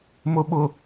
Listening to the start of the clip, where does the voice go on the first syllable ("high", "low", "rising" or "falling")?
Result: low